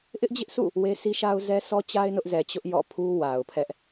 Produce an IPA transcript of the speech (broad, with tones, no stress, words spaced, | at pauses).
ʔɪ˦ʔd͡ʑɪ˦ʔsʰṵ˦˨ | we˦sʰi˦ʃa˦ʊ̯ zɛ˦sʰɔ˦t͡ɕa˦ɪ̯ nʊ˦ʔzɛ˨t͡ɕʊ˦ʔ jɔ̰˦˨pʰu˦ wa˨ʊ̯pʰɛ˦ʔ